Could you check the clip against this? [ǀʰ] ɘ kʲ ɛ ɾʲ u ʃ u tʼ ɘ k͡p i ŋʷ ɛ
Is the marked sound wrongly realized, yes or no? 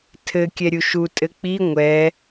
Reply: yes